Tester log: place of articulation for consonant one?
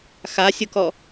velar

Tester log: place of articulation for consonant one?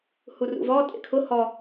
glottal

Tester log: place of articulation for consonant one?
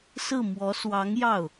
alveolar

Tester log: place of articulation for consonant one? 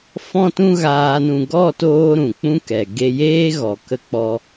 labial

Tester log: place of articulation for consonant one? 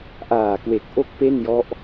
glottal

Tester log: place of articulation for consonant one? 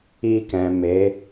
velar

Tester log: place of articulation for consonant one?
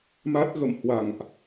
labial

